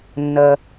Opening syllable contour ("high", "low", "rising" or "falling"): low